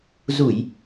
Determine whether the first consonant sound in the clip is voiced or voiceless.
voiced